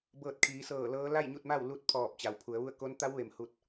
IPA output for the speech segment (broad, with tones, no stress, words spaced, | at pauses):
bɤː˧˩t̚ kʰiː˩˧sɤː˧˩lɤː˧˥ la˥˨jɲu˥˨t̚ma˥˨wlu˥˨t̚ pʰɔː˧˩p̚t͡ɕa˩wpʰu˩˧ə̯ʋu˥˨ə̯ ko˧˥nt̪a˧˥wʋe˩m hu˥˨t̚